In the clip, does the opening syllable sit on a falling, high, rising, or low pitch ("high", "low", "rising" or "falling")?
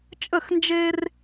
falling